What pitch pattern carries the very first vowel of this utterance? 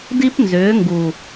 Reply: high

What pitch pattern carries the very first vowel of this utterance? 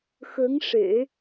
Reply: rising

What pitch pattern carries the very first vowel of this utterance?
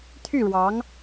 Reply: falling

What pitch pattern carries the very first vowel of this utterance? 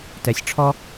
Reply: low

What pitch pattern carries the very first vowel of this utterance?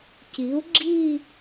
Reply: rising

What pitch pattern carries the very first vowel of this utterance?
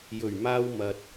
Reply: low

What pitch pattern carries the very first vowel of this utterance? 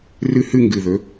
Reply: high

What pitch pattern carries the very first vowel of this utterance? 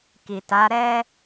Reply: low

